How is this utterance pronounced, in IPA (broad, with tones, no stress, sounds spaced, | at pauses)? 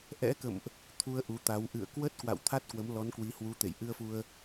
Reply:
ʔ ɛ̰˧˥ k ə̰˧˨ m ʔ | t̪ʰ u˧ ə̯ ʔ u˨˦ t̪ a˨˦ w ʔ ɨ̰˧˨ ə̯ k w ə˦˥ t̚ k w a̰˧˨ w t̪ʰ a˦˥ t̚ k w ə˨˦ m l ɔ˨˦ n k w i˨˦ h w u˨˦ t̪ ḛ˧˨ j ʔ ɨ˧ ə̯ f u˧ ə̯